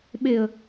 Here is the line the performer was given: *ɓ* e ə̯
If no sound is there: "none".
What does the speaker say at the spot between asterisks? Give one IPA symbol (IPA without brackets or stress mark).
ɓ